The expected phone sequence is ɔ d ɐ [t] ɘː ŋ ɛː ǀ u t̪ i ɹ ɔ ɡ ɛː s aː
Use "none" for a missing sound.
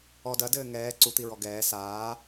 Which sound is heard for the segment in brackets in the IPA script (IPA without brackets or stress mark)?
d